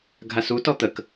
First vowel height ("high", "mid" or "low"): low